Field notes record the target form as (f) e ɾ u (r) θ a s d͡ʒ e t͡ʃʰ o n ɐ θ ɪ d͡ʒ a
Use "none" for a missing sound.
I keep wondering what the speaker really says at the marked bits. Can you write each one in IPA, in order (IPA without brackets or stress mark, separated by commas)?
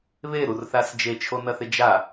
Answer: β, r